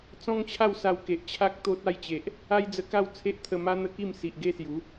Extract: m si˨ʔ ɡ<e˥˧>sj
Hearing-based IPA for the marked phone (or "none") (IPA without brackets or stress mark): e˥˧